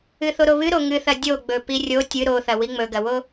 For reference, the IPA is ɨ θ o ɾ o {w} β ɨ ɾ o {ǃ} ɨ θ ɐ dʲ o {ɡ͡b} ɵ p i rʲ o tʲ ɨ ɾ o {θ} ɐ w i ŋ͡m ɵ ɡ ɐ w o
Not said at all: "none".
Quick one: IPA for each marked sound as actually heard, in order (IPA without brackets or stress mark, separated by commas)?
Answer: none, ŋ, ɡ͡b, θ